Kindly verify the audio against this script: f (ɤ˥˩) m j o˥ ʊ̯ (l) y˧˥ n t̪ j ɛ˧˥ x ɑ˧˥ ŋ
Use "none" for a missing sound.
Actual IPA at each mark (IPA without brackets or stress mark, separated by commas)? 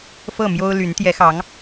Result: ɤ˥˩, l